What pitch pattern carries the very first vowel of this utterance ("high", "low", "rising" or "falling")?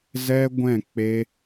high